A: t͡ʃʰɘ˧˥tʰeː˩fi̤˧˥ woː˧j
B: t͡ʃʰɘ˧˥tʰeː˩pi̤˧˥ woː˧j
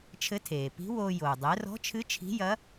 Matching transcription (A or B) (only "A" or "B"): B